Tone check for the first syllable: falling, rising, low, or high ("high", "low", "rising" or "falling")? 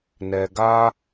low